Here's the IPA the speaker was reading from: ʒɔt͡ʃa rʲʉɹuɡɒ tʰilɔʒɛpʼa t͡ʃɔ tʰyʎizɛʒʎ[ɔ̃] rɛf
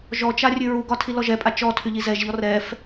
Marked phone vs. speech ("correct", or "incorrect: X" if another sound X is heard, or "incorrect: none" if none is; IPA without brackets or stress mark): incorrect: ɔ